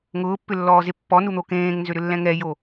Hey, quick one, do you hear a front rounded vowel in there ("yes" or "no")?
yes